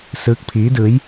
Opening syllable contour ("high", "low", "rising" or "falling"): rising